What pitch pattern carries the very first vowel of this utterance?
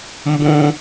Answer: high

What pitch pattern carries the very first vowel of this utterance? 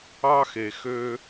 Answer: high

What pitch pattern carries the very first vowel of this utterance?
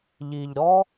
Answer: low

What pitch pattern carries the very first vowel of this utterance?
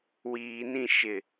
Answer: low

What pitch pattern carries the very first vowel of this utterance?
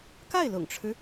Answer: falling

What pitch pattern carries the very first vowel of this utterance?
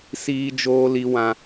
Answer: high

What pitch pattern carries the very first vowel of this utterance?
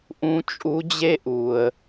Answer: rising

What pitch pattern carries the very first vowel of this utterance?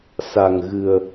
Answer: low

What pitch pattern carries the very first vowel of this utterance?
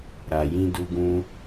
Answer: low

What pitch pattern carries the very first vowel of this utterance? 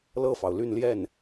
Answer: falling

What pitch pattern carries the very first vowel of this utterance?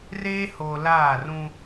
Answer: high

